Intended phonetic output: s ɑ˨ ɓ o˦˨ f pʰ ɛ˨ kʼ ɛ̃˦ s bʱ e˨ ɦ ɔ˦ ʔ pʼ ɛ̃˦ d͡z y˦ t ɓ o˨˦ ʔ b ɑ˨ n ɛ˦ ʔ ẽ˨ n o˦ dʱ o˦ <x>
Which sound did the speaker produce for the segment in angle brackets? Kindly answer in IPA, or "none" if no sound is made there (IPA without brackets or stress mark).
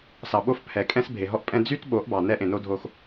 x